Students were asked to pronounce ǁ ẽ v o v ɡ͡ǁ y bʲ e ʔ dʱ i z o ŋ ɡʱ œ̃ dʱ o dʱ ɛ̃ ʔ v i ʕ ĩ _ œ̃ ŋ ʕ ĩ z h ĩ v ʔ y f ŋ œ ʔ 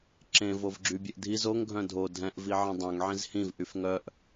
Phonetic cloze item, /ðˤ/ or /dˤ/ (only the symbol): dˤ